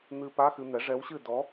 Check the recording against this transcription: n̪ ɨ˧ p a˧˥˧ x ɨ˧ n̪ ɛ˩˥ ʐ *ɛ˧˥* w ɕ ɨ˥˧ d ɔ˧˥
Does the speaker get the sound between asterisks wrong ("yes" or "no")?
no